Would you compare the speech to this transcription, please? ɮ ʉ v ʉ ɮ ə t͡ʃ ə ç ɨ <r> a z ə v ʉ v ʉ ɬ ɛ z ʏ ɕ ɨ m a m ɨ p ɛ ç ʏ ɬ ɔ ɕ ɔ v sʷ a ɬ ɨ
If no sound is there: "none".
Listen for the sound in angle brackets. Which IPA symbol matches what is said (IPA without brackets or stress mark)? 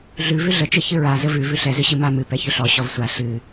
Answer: ɹ